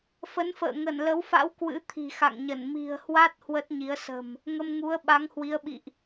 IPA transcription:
fə˨˦nfə̰ː˧˨ ŋə˧˩nlə˨˦wfa̰˧˥w kwɨ̰˧˥t̪ʰi̤˨˩ xa̰˧˨ŋɲə˧˩n mi̤˨˩ə̯hwa˦˥t̚ hwə˦˥t̚ɲi˨˦ə̯ sə̤˨˩m | ŋə˧mŋu˨˦ə̯ ɓa˨˦ŋhwi˨˦ə̯ɓḭ˧˨ʔ

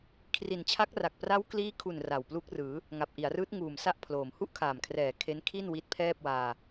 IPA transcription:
kʰri˨˩nt͡ɕʰa˦˥k̚ra˨˩k̚ pra˦˥wkliː˦˥kʰu˨˩n ra˨˩wplu˦˥k̚ rɯː˩˦ | ŋa˨˩p̚ ʔi˩˦a̯rɯː˦˥t̚ ŋuː˨˩m sa˥˩ʔpʰloː˨˩m hu˥˩ʔkʰaː˨˩mkʰrɛː˨˩ kʰe˦˥nkʰi˥˩n wi˦˥t̚pʰɛː˥˩p̚waː˧

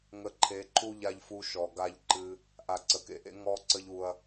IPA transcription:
ŋə˧ǃʰe˨˦ǃu˦˨ʎ a˧ʎfu˧ ʃɔ˨ ɡa˧ʎǃɨ˧ | ʔa˨ǀə˨kḛ˧ʔḛ˧ ŋɔ˦ǀə˦ʎ u˧ɐ̯

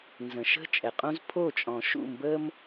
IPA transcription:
nzə̃˩ʃə̤˥˩ t͡ʃʼɛ˩qʼũ˦z pʰo˥˩ t͡ʃʼɔ̃˩ʃṵ˥˩mbə˦m

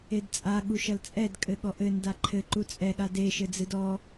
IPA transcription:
edt͡sʼa ɠuʃɐlt͡sʼɛd kʼɘɠɔʔɘ ndaǃʰɘ ǃut͡sʼɛ ɠade ʃɘd͡zɨdɔ

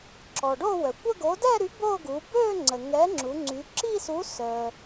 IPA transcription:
ǁɔ˩ɖo˥˧wœ˩ kʷə˥˧ɡo˨˥ dɛ˥˧ɾy˨˥ bo˥˧ ɡu˩˧bø˥˧ŋ͡ǀə˩ ŋɛ˨˥ŋ͡ǁu˩˧ ŋ͡ǀy˩˧ǁi˥˧su˨˥ sœ˩

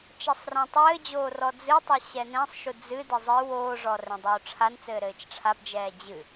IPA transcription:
t͡ʃɐsˤrãtˤɘːd͡ʑoː rɔd͡zɨtˤɘ ɕɛnɛ̃sˤʃu d͡zɨdɘ zˤɨw oːʐɔ rɛ̃dˤoːʈ͡ʂʰant͡sɘː ɾɘːt͡ʃʈ͡ʂʰabd͡ʒɛː d͡ʑɨ

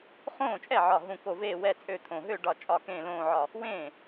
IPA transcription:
χõː˥˩t͡ʃʼɛ˥˩ ʕɒ˧˩ɦũ˧˩ko˧˩ veː˥˩wɛ˥˩ t͡sʼø˥˩t̪ʰõ˧˩ ɦø˥˩ ɖɒ˧˩ t͡ʃʼɒ˧˩kẽː˧˩ lõː˧˩ʕɒ˧˩ | wẽː˥˩

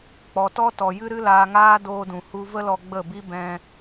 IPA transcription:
k͡pɔ˨tɔ˦tɔ˨jɨ˦ ɾɨ˦laː˧ŋaː˦ doː˧dũ˨hu˧ və˦lɔ˧ ɡ͡bə˦˨bi˦ bɛ̃˧

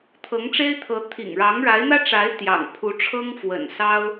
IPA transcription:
t̪ʰɤ˧˥ŋʈ͡ʂe˥ɪ̯t̪ʰɤ˧˥ t̪ʰḭ˨˩ŋ ɻɑ˧˥ŋɻa˧˥ɪ̯n̪ä˥ʈ͡ʂa˧˥ɪ̯ t̪jɑ̰˨˩ŋpʰu˧˥ʈ͡ʂʰɤ˥ŋfwə̰˨˩n sɑ˥ʊ̯

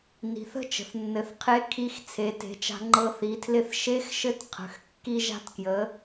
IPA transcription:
ni̤˩˧θə̤˥ t͡ʃə̤˩θnːɘ˩˧θqʰe˧˥ kʰi˧˥x t͡sʰe˩˧te̤˩˧t͡ʃa̤˧ ŋ͡ǃɤ˧θi˩˧tʰlɪ˧˥θ ʃe˧˥xʃɘ˧˥t qʰə̤˩˧x kːi˧ʒa̤˧tkjə˩˧

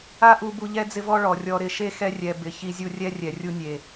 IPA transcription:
a˦ʔu˧ bu˧ʎɛ˦d͡zɪ˦vɔ˦ ɭɔ˨ rʲɔ˧ɾɪ˧ ʃe˦xɛ˧rʲɛ˨ bɪ˨ çi˧zʲu˧rʲɛ˦ rʲɛ˨rʲu˧nʲe˨

